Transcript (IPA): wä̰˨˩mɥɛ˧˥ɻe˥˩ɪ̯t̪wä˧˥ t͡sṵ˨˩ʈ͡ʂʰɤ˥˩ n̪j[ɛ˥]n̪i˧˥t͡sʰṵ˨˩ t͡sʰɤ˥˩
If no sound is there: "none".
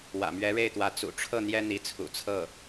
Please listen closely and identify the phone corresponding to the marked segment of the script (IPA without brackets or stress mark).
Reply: ɛ˥